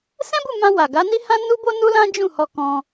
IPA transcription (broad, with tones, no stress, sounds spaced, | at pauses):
s ɛ̃˦ b u˦˨ m ã˧ w a˨ ɡ a˨˦ n i˦ h ã˦ n u˦ b o˦ n u˦ l ã˦ d͡ʒ ũ˦˨ h ɔ˧ k ɔ̃˧